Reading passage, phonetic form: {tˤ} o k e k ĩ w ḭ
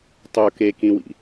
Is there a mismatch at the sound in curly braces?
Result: no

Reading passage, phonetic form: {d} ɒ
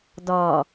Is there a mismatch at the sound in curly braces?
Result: no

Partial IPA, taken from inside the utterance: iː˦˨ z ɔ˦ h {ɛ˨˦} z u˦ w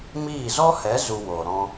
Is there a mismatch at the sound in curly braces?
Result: no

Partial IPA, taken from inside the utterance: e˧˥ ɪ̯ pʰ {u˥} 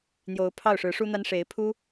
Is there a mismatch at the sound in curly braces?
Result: no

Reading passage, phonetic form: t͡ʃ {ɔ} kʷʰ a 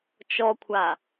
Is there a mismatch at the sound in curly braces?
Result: no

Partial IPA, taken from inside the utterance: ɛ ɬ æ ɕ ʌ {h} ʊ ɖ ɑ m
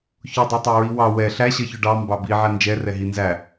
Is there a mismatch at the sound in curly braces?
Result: yes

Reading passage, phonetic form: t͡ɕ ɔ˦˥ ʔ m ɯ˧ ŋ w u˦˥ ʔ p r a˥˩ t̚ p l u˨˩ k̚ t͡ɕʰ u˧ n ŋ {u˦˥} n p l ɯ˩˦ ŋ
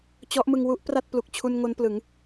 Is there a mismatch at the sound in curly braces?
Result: yes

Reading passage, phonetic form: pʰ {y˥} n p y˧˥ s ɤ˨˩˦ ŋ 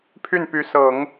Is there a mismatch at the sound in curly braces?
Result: yes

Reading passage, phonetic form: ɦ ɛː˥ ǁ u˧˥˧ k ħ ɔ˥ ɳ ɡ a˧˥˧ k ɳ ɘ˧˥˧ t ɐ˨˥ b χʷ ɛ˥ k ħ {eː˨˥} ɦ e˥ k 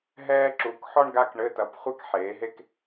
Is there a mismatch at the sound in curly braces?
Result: no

